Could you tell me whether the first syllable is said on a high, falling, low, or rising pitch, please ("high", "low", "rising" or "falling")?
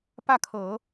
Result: falling